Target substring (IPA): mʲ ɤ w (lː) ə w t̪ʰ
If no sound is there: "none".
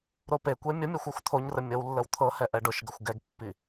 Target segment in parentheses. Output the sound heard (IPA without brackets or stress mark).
lː